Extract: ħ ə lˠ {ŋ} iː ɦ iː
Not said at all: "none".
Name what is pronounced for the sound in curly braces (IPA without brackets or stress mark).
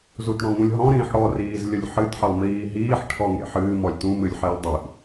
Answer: m